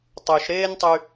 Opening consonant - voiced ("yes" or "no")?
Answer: no